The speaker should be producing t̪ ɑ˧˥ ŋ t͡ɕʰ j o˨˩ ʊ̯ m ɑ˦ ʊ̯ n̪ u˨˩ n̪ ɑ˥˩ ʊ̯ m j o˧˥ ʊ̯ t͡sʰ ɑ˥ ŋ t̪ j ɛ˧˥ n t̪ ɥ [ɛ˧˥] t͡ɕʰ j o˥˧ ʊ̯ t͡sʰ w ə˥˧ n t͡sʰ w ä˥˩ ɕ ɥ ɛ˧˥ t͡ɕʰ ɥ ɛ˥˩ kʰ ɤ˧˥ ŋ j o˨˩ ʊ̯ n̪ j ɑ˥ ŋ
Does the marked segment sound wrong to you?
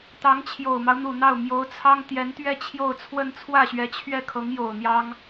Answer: yes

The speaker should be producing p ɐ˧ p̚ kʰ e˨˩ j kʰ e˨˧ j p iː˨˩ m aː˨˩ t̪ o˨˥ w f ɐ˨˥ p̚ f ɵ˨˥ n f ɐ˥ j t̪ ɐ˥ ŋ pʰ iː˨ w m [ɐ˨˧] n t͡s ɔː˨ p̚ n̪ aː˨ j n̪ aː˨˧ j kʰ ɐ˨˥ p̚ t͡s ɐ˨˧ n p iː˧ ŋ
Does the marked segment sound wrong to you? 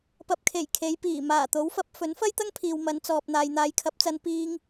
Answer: no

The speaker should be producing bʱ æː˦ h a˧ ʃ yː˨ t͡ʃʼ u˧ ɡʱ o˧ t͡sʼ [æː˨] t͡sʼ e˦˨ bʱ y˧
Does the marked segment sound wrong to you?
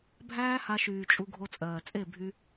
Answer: yes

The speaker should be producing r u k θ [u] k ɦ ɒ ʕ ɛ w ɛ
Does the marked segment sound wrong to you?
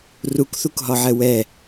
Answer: no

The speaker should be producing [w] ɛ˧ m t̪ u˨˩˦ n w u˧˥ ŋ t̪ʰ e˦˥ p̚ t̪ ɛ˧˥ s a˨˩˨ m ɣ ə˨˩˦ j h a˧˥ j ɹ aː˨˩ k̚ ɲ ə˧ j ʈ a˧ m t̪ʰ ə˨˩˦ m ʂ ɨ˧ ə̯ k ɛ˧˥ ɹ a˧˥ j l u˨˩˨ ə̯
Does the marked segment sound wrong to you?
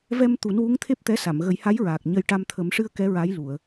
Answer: yes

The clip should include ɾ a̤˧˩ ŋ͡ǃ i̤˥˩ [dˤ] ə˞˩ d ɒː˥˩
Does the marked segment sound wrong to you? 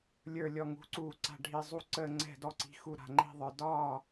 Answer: yes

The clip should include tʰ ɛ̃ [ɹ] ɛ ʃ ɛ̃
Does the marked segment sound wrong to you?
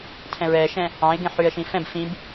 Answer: no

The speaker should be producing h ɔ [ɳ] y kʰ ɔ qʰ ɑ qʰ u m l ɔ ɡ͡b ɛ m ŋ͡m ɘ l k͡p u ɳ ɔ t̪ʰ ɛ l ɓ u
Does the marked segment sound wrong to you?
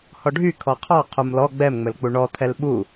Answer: yes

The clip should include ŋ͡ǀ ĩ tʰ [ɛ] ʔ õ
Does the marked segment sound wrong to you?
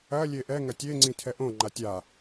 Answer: no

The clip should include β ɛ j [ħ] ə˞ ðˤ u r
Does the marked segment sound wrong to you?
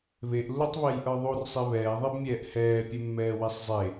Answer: yes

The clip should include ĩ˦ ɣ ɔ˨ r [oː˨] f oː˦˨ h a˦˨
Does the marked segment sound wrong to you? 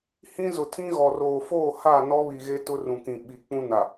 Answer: no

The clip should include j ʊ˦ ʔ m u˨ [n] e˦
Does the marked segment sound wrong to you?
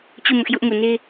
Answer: no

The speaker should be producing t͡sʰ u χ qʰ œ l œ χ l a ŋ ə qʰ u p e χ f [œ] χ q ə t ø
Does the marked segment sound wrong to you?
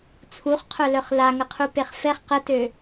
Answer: yes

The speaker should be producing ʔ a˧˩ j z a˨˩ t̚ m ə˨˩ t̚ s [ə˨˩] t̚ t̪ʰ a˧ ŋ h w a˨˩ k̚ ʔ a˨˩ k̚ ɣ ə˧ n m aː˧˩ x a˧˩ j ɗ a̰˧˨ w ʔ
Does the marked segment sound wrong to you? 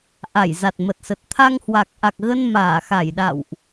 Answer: no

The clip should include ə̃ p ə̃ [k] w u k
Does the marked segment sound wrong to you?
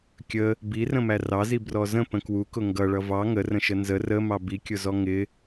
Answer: no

